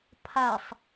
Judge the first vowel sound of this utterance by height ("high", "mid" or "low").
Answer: low